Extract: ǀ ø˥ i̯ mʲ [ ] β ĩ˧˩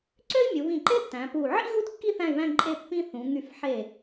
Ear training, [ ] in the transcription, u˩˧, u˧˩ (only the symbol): u˩˧